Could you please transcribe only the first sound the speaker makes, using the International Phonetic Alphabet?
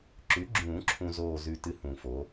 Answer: ǁ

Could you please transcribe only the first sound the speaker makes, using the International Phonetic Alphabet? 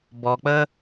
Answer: b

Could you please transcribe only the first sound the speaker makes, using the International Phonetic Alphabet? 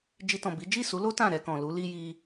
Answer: d͡ʒ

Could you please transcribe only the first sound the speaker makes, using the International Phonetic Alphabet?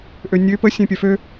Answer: ʔ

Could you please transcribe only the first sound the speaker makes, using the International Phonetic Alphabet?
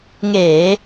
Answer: ŋ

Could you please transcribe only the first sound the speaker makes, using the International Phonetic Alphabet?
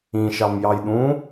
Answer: ĩ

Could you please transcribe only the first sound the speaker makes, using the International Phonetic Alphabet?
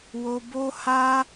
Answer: w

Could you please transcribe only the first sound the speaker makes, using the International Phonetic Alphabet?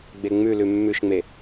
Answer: ɡ͡b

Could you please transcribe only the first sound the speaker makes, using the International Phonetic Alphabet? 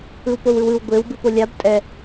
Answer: ɯ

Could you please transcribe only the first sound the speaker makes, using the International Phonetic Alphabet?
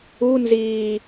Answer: u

